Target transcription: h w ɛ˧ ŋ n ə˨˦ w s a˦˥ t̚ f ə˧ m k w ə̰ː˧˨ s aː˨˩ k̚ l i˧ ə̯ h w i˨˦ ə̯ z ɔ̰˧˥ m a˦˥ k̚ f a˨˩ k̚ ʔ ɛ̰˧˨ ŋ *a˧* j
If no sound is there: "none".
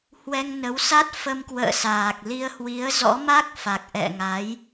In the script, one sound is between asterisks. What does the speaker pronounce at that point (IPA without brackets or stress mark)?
a˨˦